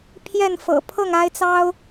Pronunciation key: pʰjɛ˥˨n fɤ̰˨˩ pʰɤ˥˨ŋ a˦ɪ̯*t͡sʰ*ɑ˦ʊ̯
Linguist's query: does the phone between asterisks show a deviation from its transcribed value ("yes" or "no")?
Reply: yes